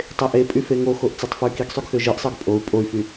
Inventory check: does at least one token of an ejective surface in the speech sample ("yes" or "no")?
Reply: yes